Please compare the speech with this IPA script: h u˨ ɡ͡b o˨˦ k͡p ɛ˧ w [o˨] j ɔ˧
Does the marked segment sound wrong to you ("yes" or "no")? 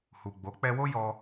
yes